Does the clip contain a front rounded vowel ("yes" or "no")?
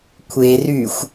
yes